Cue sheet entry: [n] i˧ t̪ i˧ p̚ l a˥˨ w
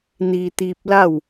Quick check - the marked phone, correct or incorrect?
correct